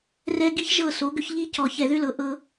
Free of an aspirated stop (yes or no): yes